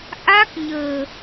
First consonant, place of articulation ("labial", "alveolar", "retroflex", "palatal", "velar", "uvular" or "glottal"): glottal